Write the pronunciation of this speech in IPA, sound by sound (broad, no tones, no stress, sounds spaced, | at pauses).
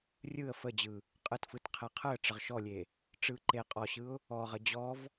rʲ ɯ ə̯ f ə d͡ʑ ɯ | qʼ ɯ t f ɯ t qʰ e qʰ ɯ ə̯ ʈ͡ʂ ə ʁ ʃ ɔ lʲ e | ʈ͡ʂ ɯ ǃ e qʼ ɔ ɕ ɯ ʊ̯ | ɔ ʁ ə d͡ʑ ɔ v